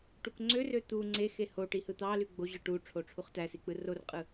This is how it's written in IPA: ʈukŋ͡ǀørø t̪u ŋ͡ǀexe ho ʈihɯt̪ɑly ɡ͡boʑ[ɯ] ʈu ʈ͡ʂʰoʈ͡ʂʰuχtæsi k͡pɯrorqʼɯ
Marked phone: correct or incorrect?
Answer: correct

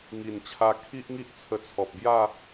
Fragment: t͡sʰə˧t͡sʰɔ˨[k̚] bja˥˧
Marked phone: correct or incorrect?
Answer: incorrect: p̚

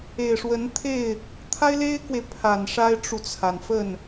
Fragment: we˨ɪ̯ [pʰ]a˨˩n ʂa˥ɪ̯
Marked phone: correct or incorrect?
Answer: correct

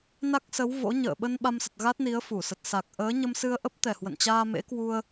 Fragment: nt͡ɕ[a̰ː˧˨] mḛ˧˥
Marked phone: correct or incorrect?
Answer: incorrect: aː˧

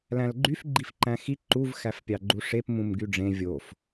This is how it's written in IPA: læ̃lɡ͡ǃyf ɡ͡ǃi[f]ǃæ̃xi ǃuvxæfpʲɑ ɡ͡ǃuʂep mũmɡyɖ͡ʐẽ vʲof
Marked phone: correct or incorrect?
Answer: correct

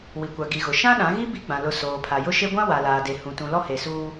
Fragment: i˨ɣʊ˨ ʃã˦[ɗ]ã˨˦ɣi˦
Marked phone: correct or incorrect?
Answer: correct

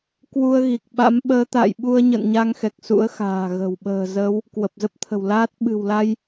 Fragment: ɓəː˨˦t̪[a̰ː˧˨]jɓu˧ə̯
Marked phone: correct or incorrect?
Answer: correct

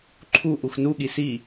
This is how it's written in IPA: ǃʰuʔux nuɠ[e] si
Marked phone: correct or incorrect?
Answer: incorrect: i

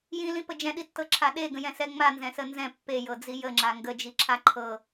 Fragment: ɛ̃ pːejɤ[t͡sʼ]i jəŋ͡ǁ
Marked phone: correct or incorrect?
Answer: incorrect: d͡z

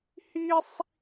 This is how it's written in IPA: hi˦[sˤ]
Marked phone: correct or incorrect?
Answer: correct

